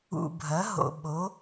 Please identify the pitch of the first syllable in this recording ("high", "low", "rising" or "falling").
low